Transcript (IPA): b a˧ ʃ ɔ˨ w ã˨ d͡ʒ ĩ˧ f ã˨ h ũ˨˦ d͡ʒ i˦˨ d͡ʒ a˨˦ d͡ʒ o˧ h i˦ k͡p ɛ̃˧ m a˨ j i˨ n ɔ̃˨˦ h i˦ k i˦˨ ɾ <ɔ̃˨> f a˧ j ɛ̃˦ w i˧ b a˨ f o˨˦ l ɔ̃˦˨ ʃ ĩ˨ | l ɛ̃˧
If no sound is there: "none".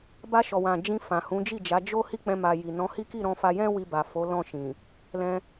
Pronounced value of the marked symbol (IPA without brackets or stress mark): ɔ̃˧